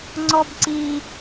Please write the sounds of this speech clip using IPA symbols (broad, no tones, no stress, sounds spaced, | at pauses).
ŋ͡ǀ ɔ b ǀ i